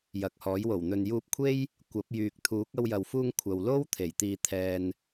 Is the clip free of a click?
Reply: yes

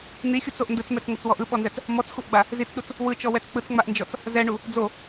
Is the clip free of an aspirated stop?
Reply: yes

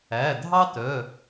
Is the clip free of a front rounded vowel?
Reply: no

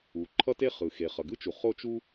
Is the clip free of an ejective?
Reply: yes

